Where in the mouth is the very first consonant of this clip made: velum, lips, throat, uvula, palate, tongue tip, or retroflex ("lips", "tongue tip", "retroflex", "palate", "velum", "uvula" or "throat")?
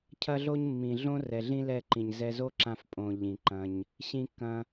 palate